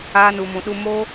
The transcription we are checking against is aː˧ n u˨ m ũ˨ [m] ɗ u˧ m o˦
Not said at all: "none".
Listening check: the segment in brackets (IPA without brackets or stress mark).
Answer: none